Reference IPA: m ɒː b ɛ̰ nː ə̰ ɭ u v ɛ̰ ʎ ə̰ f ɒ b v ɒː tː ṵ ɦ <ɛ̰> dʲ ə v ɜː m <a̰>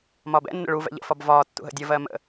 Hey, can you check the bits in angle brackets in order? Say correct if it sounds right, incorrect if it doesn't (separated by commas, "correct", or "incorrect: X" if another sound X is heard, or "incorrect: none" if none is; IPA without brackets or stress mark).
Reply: incorrect: ə̰, incorrect: ə̰